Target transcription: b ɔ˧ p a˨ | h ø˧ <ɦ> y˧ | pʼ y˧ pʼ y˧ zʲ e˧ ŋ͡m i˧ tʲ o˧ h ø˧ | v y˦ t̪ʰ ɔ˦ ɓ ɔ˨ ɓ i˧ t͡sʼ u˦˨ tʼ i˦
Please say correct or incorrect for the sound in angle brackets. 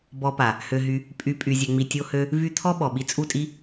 correct